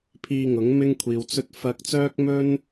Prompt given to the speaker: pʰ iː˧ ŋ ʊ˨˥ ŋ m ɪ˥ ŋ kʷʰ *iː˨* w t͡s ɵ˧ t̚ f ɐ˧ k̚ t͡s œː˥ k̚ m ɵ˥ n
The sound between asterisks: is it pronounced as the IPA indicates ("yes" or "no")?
yes